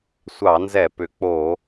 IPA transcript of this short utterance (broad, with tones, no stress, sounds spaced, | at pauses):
sʷ ɑ˧˩˧ n z ɛ˧˩˧ p ʏ˩˥ k͡p o˧˩˧